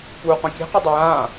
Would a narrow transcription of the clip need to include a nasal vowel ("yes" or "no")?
yes